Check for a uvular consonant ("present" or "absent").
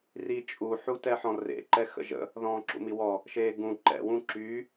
absent